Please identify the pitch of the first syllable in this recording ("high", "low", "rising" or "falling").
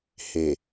low